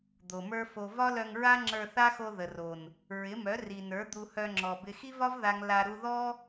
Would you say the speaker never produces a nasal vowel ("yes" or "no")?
yes